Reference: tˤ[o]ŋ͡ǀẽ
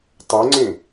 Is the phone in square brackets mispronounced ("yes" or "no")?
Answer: no